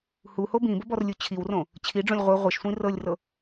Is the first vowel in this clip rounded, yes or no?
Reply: yes